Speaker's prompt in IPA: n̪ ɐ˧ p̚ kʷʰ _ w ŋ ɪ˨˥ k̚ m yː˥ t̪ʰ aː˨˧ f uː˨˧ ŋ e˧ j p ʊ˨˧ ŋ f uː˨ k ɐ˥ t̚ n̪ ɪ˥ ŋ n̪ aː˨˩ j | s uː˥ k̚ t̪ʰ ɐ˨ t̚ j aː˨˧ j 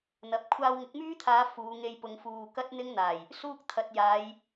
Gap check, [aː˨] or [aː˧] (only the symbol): aː˧